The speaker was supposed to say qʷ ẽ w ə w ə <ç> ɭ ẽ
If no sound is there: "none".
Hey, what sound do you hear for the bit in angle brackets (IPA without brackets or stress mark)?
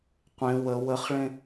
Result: χ